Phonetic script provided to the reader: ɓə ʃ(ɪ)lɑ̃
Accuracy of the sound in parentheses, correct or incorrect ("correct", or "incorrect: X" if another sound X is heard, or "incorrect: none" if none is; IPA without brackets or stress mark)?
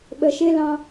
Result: correct